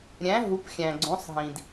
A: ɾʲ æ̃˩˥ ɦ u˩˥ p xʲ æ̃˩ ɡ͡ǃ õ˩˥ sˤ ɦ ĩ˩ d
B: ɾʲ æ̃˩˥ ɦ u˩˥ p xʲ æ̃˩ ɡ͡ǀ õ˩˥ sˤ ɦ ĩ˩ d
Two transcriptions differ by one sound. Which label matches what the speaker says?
B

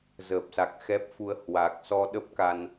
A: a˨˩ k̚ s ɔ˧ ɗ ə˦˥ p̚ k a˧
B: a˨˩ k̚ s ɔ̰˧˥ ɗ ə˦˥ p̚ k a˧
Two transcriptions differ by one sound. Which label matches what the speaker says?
A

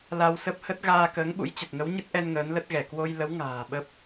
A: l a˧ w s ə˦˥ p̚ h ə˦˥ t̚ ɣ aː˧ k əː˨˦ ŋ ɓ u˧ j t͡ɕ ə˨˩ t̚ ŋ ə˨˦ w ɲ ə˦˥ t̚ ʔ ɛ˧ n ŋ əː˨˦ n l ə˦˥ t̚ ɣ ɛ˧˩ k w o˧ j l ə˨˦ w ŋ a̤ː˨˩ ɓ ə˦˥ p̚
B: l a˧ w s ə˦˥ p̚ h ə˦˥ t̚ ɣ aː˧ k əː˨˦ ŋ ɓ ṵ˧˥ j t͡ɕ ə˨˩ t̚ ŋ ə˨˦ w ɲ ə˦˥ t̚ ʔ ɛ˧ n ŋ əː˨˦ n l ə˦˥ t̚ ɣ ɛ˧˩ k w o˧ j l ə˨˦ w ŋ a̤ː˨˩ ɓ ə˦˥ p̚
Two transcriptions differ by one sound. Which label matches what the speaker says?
B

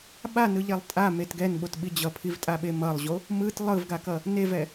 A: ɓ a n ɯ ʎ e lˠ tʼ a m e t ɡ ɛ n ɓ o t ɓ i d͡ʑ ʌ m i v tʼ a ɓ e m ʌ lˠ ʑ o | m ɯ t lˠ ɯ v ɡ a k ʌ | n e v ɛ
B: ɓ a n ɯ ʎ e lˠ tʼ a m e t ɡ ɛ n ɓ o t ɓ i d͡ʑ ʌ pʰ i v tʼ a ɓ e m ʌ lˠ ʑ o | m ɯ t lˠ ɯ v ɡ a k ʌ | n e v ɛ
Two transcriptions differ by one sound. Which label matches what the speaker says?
B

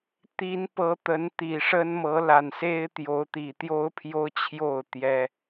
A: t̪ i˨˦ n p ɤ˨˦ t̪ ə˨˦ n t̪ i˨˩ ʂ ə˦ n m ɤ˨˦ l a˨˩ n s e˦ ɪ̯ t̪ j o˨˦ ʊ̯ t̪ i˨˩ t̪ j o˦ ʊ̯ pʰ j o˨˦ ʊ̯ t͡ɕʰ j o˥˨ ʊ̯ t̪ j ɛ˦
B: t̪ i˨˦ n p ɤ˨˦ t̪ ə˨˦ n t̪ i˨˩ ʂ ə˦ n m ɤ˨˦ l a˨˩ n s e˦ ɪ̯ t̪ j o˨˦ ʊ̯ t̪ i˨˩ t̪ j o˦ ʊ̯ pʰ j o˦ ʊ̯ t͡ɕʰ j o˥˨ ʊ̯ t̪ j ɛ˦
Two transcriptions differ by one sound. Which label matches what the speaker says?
B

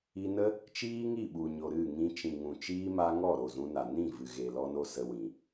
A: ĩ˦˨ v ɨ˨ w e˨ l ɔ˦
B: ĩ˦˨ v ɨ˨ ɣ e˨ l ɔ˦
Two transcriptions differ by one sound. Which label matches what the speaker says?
B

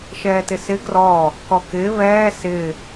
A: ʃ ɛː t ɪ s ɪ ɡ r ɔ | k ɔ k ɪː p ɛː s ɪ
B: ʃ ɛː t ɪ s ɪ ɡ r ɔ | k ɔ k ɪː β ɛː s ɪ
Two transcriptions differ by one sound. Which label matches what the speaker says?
B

